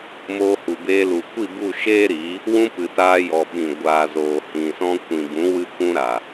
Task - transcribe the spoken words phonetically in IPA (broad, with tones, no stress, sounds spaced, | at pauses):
m oː˧ h u˨ b eː˧ l u˨ kʷ i˦˨ b u˦˨ ʃ eː˦ ɾ iː˨˦ | w ũ˧ p ɨ˨ t aː˧ j ɔ˨ ɓ ĩ˨ ɡʷ aː˨ z oː˨ h ĩ˨ s ɔ̃˧ kʷ ĩ˨ b ũ˨˦ w ɨ˧ kʷ ũ˧ ɾ a˨